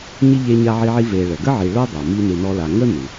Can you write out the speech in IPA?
ɲi˥ʎe˦ ɲa˦ʕi˦ʕi˦ ve˨ɭə˩ɡə˥ʕi˨ ɭo˥dˤo˩ mi˦nɨ˨nɔ˦la˨ ŋə˥ nɨ˩

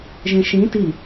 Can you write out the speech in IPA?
ʒẽʃĩ ti

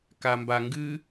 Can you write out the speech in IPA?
kambaŋɡɨ

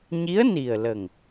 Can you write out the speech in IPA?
ɲi˧˥ə̯ni˨˩ə̯lə˨˩ŋ

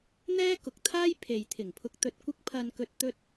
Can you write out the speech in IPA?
n̪ɛː˥kʊ˨k̚t̪ʰaː˥j pʰe˨jt̪ʰɪ˨˩ŋpʰʊ˧k̚t̪ɵ˧t̚ kʷɪ˧k̚pʰɐ˨nkɵ˨t̚ t̪ɵ˧t̚

